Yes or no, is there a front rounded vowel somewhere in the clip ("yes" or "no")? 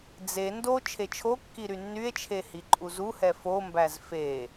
yes